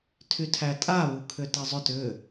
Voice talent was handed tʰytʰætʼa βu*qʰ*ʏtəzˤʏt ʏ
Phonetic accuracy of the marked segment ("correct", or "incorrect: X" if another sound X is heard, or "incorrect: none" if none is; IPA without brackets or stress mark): incorrect: kʰ